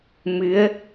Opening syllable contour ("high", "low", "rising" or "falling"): rising